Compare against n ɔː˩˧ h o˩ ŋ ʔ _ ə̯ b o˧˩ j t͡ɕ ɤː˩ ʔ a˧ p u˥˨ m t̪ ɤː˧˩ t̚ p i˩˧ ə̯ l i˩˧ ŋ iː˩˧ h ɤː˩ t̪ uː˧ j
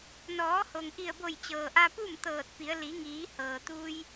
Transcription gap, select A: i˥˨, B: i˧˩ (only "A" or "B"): B